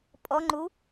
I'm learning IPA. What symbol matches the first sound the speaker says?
pʼ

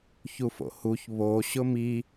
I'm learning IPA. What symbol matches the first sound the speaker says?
ç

